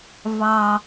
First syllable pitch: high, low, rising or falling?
low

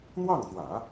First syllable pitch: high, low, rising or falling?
falling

